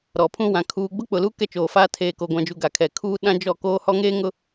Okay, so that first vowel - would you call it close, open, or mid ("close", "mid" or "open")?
mid